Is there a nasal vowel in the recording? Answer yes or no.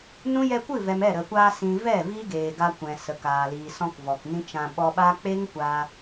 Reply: yes